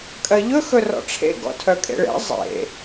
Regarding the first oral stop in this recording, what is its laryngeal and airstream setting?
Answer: ejective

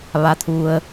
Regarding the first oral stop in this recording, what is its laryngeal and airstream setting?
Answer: aspirated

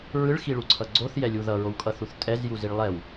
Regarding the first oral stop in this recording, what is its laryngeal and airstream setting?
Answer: click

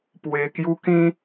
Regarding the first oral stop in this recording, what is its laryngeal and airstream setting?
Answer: plain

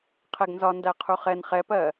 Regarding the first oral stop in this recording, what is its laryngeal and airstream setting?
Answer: aspirated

